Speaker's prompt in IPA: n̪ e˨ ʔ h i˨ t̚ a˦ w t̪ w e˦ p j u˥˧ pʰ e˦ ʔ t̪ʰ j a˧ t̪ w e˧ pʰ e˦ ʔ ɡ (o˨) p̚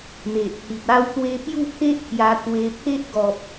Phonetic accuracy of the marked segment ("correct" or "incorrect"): incorrect